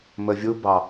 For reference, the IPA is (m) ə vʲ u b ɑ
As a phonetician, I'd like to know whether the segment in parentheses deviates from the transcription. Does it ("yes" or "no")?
no